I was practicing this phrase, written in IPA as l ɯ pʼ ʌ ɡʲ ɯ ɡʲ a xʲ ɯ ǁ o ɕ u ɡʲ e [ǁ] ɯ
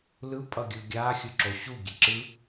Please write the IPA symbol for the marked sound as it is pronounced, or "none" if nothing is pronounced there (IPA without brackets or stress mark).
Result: ǁ